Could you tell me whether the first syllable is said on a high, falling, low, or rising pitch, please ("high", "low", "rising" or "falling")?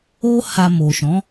high